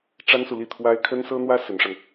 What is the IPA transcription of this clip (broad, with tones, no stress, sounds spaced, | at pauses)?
ʈ͡ʂ a˥ n s u˨ l i˥˩ t̪ʰ w a˥ ɪ̯ kʰ ə˥ n s ɤ˥ n̪ w ä˥ s ə˧˥ n ʂ a˧ n